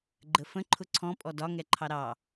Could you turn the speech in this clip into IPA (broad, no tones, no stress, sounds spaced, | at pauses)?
ɡ͡ǃ ə f ə̃ ǃʰ ʊ ǀʰ ɔ̃ pʼ ɔ d ɒ ŋ ɛ ǃʰ ɑ ɾ ɑ